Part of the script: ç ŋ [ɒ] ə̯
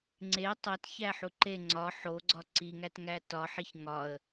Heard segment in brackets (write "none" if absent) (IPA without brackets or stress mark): ɒ